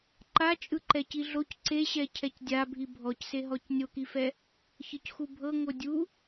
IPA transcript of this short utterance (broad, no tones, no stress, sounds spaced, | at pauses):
ǃ a t͡ʃʼ ɯ ǃ ɛ c i ɮ o c ǀ e ɕ ɛ cʰ ɛ c dʲ a bʱ i bʱ ɔ c s e ɦ ɔ c nʲ o k i f ɛ | ç ɤ c x u bʱ ɤ ŋ o dʲ u